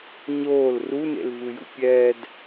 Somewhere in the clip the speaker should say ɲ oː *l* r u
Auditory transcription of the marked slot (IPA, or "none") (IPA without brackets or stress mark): l